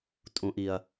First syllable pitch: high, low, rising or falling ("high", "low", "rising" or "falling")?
low